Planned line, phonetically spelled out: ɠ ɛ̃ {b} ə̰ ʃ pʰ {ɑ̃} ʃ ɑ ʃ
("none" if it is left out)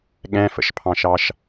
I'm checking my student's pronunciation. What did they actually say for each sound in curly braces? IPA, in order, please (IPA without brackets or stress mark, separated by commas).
f, ɑ̃